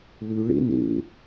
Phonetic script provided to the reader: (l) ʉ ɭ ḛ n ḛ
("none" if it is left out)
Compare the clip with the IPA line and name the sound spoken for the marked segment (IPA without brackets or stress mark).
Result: l